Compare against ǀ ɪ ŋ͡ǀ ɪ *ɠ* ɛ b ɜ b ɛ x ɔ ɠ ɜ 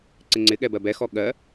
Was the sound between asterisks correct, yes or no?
yes